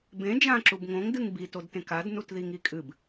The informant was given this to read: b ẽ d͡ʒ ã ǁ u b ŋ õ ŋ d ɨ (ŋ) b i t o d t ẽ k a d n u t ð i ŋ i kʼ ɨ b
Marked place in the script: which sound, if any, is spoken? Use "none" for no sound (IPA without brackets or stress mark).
ŋ